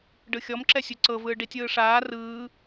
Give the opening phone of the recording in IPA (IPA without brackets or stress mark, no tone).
ɖ